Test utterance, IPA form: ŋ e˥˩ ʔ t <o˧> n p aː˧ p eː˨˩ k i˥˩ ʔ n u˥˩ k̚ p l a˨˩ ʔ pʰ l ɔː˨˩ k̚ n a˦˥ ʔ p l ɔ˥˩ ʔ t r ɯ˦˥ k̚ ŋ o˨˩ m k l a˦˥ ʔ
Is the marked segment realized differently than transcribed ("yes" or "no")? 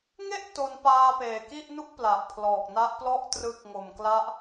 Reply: no